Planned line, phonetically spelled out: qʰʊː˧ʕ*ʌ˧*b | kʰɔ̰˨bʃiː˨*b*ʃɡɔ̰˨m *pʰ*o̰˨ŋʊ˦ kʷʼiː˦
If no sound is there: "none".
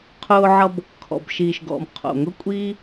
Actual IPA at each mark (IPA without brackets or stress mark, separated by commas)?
ʌ˧, none, qʰ